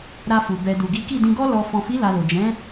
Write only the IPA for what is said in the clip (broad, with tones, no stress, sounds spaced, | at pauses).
ɾ a˧ f u˨ b ɛ˨ d u˨ ɡ i˨˦ k i˦˨ d ĩ˧ ɡ ɔ˦ l ɔ˧ f ɔ̃˨ f i˨˦ l a˧ l o˨ d͡ʒ ɛ̃˨˦